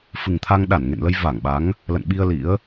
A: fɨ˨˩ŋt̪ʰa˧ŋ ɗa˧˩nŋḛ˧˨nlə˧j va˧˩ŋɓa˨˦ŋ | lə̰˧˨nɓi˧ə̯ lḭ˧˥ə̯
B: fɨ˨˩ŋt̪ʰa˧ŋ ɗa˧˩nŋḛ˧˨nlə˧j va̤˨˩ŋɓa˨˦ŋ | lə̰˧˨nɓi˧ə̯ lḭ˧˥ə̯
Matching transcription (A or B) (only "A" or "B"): A